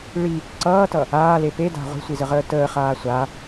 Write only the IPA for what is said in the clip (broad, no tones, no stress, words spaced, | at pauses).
ɭi | ǀʌːtʌ | aːle peda̤ ʁʷi̤sʷizəʁəː təːχaː sʷa